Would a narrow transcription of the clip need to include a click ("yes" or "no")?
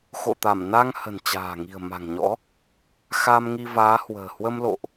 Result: no